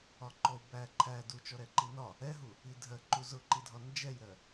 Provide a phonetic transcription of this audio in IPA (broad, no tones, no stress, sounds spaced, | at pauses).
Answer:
ɒ ǃ ɔ u̯ b æ ǃʰ æ d u t͡ʃ ɔ ɾ ɛ ǃ i n ɒ | ɛ ɦ u | i dʱ ɜ ǃ u z ʊ ǃ i dʱ ɒ n d͡ʒ ɛ j ɾ ɜ